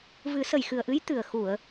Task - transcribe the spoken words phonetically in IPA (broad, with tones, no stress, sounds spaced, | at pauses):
v ɨ˨˩˦ s ə˨˩ j x ɨ˨˩ ə̯ ʔ ɨ˧˥ j t̪ ɨ˨˩ ə̯ x u˨˩˨ ə̯